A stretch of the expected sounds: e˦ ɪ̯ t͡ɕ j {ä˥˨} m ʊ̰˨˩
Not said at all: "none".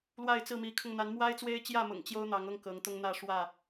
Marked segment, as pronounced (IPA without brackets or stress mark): ä˥˨